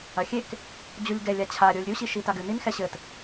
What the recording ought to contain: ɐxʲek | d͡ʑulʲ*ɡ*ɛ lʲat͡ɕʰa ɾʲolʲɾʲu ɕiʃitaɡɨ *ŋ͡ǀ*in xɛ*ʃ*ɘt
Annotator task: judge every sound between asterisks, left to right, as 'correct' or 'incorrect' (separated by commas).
correct, incorrect, incorrect